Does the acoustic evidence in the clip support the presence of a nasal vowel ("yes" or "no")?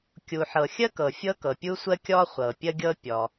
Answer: no